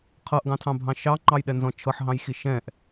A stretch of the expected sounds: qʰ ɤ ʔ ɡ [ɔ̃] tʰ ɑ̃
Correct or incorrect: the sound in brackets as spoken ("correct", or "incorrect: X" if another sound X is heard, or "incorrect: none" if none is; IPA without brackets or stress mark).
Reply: incorrect: ɑ̃